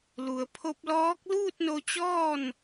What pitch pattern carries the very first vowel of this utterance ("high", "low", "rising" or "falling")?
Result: low